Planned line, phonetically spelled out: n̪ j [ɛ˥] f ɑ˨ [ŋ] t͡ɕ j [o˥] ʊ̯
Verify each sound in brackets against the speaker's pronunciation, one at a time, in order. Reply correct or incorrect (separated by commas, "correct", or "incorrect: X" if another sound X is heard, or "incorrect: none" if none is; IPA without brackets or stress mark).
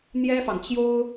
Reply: correct, correct, correct